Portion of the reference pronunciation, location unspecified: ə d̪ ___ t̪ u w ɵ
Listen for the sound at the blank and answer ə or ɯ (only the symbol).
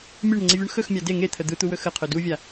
ɯ